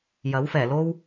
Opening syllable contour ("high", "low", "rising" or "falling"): rising